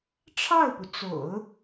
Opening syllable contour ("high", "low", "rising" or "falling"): falling